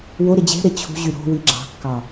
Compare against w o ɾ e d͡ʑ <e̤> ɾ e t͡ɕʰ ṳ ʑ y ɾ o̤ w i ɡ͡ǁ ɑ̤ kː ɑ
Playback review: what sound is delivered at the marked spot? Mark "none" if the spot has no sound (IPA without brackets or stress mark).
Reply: e̤